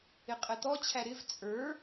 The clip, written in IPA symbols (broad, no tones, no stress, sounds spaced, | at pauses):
ɪ qʼ ɛ t̪ ɔ t͡ɕʰ æ ɾ ɪ v t͡sʼ ə˞